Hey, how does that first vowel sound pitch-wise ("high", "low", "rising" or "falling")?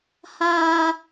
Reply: high